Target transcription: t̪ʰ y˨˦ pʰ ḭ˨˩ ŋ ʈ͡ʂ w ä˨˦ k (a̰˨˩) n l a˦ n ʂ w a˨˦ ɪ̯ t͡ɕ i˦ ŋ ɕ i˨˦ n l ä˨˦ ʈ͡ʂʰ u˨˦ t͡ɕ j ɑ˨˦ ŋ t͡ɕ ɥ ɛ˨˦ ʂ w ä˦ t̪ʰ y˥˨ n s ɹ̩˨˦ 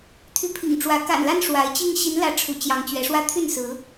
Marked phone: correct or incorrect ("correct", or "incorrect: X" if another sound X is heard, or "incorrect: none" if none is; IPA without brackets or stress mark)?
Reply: correct